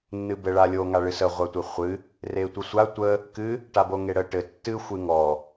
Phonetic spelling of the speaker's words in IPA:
nː ɨ b ɘ ɭ a lʲ o ŋ a ɭ ɨ s ə ʁʷ a tʷ e χʷ ɨ | r e tʷ ə sʷ a tʷ ə | k ɨ | ʈ a b o ŋ e ɽ ə ʈ ɘ tː ɨ xʷ ɨ ŋ ɔ

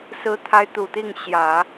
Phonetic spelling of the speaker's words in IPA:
s ɹ̩˧˥ t̪ʰ a˧˥ ɪ̯ t̪ u˨˩ t̪ i˥˩ ŋ ɕ j ä˨˩˦

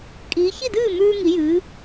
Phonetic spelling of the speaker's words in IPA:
kʼ iː˩˧ ç i˥˩ d ɨː˥˩ m ʉː˧ ŋ i˩˧ j ɨː˩˧

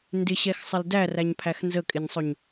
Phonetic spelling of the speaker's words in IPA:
n d ɪ ɕ ɛ x sˤ ɪ l d æ r æ ɲ pʰ æ x n z ə kʼ ɪ nʲ sˤ ʊ ɲ

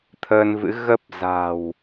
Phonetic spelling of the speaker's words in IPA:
t̪ʰ əː˧ n v ɨ̰˧˥ ɣ ə˦˥ p̚ z a̤˨˩ w

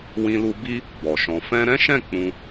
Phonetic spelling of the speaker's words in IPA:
w ĩ˧ l u˧ b i˦ | b ɔ˨ ʃ ɔ̃˧ f ɛ̃˦ ɾ ɛ̃˦ ʃ ɛ̃˦˨ k͡p ũ˧

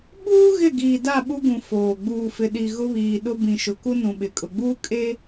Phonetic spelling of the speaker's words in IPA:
ɓ uː˦ ɣ ɪ˦˨ ɡ iː˨ d a˦˨ ɓ u˦ ɡ ũ˨ f oː˨ ɡ͡b uː˨ f ɪ˨ ɗ i˨ ɣ ʊ˦ β iː˨ ɗ ʊ˦ b ĩ˨ ʃ ʊ˨ k u˦ n ũ˨ ɓ ɪ˨ kʼ ʊ˨ ɡ͡b uː˦ kʼ e˦

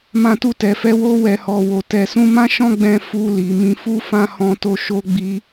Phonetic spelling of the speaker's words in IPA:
m ã˧ t u˧ t ɛ˨ f ɛ˧ w o˧ w ɛ˨ h ɔ˨ w o˨ t ɛ˨ s ũ˧ m ã˦ ʃ ɔ̃˦ ɡ͡b ɛ̃˧ f u˧ l i˨ m ĩ˨ f u˧ f ã˧ h ɔ̃˧ t o˧ ʃ o˦ ɡ͡b i˦

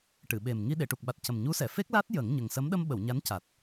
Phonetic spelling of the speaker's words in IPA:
ʈ ɨ˨˩˨ ɓ e˨˩ m ŋ i˧ ɗ e˨˩˨ ʈ u˨˩ k̚ ɓ a˨˩ t̚ c ə˨˩ m ɲ u˧˥ s ɛ˨˩˨ f e˦˥ k̚ l a˦˥ t̚ j ə˨˩˦ ŋ ɲ ə˨˩ ŋ s ə˧˥ m ɗ ə˧ m ɓ ə˨˩˨ w ɲ a˧˥ n c a˨˩ t̚

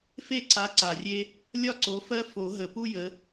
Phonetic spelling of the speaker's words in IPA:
f e˥˩ ǀ a˨˦ ǀ a˨˩ rʲ e˦ | lʲ ɒ˥˩ ǀ o˨˦ f ɜ˦ f o˨˩˦ ɦ ə˨˩˦ p u˦ j ə˨˦

